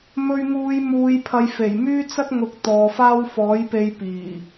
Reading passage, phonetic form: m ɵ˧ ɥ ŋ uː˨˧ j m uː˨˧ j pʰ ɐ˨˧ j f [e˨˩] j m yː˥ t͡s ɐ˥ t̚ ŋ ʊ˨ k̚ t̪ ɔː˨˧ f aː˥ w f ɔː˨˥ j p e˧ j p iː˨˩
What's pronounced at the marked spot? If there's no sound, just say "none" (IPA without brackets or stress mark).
e˨˩